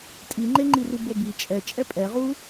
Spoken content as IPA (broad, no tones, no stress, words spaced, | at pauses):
tʼiŋ͡ǃeŋ͡ǃiru bobi t͡ʃʼɛ t͡ʃʼɛpʼɛʁuː